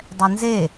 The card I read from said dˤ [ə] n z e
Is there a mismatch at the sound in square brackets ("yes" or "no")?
yes